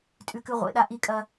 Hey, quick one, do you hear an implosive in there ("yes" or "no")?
yes